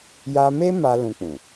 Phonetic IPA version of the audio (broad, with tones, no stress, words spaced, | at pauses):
ja˧me˦ ma˧ lũ˧k͡pũ˨